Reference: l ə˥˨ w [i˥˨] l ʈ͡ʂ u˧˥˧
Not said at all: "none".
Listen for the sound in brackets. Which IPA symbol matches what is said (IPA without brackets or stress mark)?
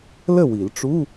i˨˩˦